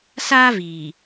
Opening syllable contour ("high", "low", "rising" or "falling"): high